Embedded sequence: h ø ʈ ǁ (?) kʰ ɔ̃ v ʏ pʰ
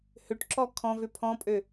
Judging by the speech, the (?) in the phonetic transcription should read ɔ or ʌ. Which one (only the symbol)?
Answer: ɔ